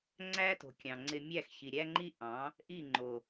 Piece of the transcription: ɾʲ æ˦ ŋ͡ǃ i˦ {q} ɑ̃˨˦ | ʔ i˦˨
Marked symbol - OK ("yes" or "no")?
no